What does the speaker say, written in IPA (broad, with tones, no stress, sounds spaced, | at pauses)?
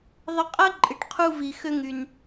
ðˤ ɪ˧ qʼ ɐ˥ ǃʼ ɪ˩ ʈ qʰ u˧ v i˩ x ø˧ ŋ y˩ n